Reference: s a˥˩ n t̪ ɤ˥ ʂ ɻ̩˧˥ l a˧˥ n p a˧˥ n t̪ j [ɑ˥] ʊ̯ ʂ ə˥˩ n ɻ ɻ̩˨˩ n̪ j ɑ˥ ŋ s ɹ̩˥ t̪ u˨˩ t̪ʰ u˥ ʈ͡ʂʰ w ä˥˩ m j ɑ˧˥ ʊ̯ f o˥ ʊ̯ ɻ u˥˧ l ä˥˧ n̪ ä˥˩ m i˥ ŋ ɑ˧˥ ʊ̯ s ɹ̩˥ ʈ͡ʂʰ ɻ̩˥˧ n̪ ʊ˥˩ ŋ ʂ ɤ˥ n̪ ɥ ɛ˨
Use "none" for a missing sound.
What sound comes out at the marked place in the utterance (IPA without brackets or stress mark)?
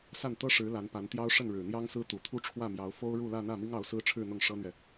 ɑ˥